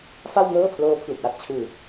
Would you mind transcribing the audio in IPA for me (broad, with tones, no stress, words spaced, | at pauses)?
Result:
fa˥˩wŋɤː˥˩pʰloː˦˥ pʰlu˨˩k̚wa˥˩t̚t͡ɕʰɯː˧